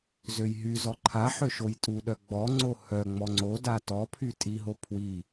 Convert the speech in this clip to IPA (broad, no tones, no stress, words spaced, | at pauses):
zøjɦyzɔ ǃʰaħø ʃojtʼuɗœ ɡ͡bɔ ŋ͡ǀohœŋ͡mɔ ŋ͡ǀoda tɔpʰy tʼiɦo pʰwi